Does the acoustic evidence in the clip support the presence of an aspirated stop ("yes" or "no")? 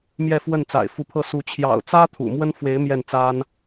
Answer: yes